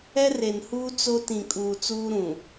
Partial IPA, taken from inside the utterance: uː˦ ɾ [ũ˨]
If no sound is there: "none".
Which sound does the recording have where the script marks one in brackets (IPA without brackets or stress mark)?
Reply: ũ˨